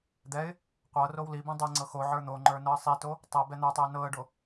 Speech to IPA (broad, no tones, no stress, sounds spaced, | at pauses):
d̪ ɛ ɪ̯ | qʷ ɤ r o w l i b ĩ dˤ ɛ ŋ͡ǀ ɤ x o ʕ ə˞ n̪ o ŋ͡ǃ ə˞ n ɤ ə̯ sˤ i t o | tˤ ɤ b ɛ n̪ ə˞ tˤ ɵ ɪ̯ n ɤ ə̯ ɖ o